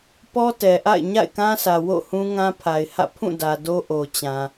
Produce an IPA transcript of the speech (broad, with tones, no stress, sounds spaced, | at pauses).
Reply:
p ɔ˦ t ɛ˨ ʔ a̰˦˨ ɪ̯ ɲ a̰˦˨ ɪ̯ k ã˦ sʰ ä˨ w o̰˦˨ h ũ˦ ŋ ã˦ pʰ a˨ ɪ̯ h ä̰˦˨ pʰ ũ˦˨ d ä˨ d o˦ ʔ o˨ t͡ɕ ã˨